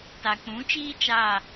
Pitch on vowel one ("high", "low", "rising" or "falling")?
low